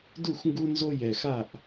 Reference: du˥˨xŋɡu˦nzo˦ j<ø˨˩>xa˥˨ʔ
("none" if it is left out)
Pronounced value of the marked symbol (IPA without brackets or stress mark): ɛ˨˩